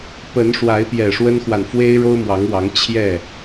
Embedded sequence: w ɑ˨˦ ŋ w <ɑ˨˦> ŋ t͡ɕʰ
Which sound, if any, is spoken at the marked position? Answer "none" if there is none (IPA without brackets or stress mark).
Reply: ɑ˨˦